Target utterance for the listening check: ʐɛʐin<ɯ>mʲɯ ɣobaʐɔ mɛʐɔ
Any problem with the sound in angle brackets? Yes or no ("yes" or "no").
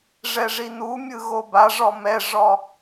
yes